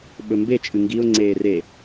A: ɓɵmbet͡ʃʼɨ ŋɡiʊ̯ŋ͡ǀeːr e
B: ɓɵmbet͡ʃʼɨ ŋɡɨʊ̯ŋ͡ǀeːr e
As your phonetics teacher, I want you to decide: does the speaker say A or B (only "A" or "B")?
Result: A